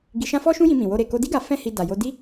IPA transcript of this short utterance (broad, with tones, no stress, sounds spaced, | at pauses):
ɡ i˧ ʃ ã˦ f ɔ˦ ʃ ũ˦ j ĩ˧ m ĩ˨ w o˧ ɾ e˨ k o˧ d i˦ ɡ a˧ f ɛ̃˦ h i˧ d a˨ j o˧ d i˦